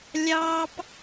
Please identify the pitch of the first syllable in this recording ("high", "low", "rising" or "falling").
high